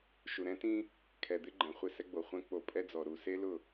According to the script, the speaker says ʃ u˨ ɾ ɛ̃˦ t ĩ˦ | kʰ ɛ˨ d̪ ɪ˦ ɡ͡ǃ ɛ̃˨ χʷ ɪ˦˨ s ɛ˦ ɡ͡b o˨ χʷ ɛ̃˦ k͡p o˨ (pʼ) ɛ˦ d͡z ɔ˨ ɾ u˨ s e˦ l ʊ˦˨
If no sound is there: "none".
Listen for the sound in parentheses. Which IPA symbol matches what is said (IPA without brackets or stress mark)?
pʼ